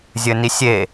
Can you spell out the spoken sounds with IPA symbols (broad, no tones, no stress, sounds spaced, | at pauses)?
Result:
zʲ ɘ n i sʲ e